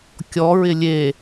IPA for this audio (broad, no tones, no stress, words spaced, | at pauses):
kʲɔɹɪ lʲe